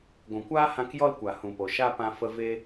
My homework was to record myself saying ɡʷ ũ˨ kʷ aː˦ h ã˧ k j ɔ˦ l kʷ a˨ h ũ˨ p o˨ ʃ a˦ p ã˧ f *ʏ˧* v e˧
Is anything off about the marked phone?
yes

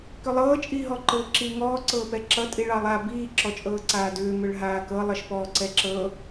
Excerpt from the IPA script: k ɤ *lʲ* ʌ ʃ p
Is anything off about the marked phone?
yes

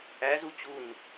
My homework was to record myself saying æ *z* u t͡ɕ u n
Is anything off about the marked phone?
no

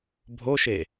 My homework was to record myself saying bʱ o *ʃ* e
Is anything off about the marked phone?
no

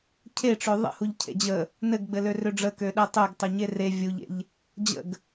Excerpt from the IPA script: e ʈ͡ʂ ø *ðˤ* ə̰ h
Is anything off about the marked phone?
no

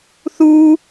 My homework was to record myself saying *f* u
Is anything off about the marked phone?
yes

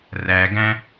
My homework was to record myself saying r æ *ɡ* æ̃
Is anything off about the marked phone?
no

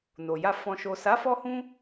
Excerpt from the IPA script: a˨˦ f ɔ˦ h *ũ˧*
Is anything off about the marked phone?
yes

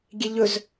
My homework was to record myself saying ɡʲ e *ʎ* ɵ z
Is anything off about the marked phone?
no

